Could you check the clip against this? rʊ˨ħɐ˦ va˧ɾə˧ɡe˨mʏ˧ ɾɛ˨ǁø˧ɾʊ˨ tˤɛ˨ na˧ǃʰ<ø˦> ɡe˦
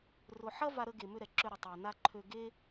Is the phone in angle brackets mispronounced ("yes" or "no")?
yes